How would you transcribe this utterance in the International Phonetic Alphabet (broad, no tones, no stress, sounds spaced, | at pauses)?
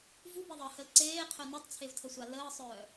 v u b e ðˤ əː h ə l ǀ eː qʰ œ n ɛ tˤ t͡sʰ e v tʰ ə sʷ a l əː sˤ œː